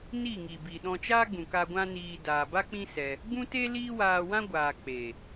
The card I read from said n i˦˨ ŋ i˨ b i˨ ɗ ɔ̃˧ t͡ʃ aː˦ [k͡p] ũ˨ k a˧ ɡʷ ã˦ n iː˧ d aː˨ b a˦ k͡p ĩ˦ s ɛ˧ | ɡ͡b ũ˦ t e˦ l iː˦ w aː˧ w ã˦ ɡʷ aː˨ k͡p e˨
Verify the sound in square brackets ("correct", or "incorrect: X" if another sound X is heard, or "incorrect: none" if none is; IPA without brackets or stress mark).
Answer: incorrect: ɡ͡b